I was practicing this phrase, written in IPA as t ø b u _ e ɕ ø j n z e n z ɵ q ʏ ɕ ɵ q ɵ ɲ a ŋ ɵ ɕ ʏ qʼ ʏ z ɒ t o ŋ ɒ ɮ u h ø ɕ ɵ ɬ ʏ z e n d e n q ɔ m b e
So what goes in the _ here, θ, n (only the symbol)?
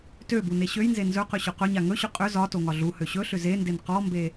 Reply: n